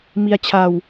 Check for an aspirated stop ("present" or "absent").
present